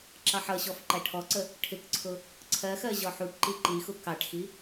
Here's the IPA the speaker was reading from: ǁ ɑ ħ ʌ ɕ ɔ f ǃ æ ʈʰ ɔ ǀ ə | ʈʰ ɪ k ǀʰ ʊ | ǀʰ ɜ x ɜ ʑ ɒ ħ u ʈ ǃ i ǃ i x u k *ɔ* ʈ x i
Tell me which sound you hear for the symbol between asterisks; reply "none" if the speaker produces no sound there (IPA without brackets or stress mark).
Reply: ɑ